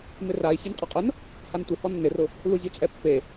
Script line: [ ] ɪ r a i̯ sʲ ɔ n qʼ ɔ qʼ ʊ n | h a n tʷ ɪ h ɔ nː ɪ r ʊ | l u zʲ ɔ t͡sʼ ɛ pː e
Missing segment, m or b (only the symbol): m